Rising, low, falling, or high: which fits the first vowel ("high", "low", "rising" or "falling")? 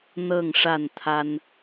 falling